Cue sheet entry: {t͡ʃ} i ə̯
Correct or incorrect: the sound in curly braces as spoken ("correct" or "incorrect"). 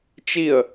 correct